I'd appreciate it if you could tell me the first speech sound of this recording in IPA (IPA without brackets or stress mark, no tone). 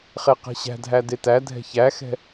χ